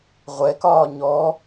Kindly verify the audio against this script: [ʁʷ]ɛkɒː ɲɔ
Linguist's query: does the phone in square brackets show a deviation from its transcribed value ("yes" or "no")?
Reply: no